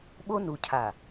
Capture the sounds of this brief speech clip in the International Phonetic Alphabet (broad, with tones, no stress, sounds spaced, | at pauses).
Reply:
ɓ o˦ n u˨ cʰ a˨